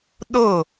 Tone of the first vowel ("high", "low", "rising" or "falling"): falling